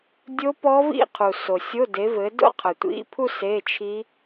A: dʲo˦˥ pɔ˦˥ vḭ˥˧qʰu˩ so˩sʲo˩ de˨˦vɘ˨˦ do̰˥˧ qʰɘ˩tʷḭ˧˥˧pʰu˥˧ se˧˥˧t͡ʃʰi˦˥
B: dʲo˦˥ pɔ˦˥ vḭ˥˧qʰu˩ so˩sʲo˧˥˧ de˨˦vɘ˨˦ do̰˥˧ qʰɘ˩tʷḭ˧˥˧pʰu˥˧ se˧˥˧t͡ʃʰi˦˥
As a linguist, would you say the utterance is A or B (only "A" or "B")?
B